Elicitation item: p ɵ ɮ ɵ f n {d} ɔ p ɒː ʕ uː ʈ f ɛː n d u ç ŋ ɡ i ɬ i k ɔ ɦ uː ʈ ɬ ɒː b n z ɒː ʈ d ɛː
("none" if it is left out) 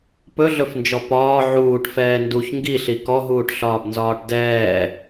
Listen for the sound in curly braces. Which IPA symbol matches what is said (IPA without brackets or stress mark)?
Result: d͡ʒ